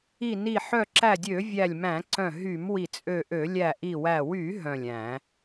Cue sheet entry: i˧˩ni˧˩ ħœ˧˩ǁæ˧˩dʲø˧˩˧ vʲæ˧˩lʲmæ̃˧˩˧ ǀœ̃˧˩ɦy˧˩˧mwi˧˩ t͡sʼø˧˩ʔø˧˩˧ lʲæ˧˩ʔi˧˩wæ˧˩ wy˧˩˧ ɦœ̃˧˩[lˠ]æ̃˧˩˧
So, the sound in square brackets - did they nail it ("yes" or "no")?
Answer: no